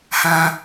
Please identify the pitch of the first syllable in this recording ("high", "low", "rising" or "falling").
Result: high